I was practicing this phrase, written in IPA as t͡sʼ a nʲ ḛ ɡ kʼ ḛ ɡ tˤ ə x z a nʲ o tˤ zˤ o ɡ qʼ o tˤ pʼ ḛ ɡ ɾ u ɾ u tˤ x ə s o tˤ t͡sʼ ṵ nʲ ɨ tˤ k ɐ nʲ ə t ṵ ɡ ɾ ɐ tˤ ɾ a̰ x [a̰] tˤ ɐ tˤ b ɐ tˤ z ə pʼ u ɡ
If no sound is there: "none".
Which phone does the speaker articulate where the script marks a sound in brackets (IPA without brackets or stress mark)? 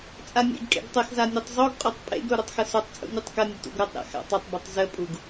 a̰